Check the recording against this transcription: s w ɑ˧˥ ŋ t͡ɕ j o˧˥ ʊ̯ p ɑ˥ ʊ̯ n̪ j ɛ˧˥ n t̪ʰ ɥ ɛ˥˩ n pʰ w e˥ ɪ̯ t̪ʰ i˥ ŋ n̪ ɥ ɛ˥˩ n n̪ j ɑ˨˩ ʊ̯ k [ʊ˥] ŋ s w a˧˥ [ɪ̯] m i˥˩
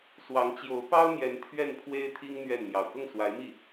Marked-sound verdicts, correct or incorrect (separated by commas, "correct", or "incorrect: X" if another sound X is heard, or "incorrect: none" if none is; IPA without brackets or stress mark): incorrect: ʊ˥˩, correct